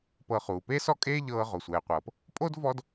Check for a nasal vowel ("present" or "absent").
absent